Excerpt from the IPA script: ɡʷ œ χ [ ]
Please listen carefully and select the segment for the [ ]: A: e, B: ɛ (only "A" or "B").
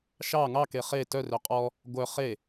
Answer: A